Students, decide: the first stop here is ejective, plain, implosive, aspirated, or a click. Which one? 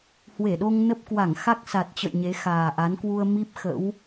implosive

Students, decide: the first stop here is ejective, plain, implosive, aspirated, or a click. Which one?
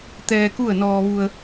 plain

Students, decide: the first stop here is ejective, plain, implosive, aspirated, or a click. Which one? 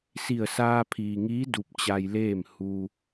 aspirated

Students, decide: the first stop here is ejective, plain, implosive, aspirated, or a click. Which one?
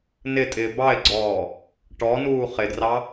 ejective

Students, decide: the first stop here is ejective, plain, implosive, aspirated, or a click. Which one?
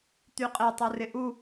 plain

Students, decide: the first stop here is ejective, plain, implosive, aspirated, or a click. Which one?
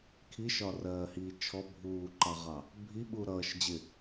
aspirated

